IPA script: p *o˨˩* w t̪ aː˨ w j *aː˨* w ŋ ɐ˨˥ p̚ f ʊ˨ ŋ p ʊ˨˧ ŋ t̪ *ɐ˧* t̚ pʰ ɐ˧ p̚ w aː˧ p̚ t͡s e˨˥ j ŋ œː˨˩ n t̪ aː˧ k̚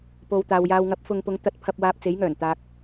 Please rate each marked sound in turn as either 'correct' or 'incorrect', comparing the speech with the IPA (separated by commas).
incorrect, correct, correct